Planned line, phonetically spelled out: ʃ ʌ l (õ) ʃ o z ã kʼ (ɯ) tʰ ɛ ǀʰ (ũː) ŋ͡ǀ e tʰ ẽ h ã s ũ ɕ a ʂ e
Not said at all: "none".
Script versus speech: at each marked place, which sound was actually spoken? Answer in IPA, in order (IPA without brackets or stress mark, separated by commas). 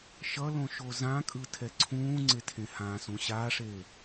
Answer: õ, ɯ, ũː